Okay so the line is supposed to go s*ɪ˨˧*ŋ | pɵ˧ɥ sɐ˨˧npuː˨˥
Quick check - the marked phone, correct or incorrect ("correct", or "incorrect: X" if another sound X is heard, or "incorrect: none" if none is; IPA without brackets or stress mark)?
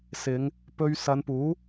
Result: correct